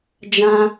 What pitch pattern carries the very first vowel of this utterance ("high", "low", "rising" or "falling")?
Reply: high